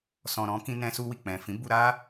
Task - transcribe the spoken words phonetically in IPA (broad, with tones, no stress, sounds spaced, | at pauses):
s ɔ̃˨ ɾ ɔ̃˧ k ĩ˧ n ɛ̃˧ s u˧ w i˨ k͡p ɛ̃˨ f ĩ˨˦ b u˧ ɾ a˦